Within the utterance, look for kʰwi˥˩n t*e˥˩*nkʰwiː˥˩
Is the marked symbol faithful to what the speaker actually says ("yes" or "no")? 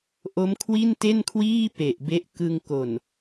yes